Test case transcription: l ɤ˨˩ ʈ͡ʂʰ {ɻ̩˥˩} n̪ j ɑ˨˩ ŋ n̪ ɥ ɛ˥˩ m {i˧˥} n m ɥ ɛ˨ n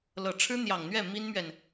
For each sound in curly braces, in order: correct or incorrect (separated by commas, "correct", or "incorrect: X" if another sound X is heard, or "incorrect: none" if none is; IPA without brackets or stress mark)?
incorrect: ɻ̩˥, incorrect: i˥